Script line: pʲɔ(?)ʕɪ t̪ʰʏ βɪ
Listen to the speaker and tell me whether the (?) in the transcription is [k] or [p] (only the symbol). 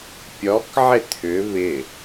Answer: k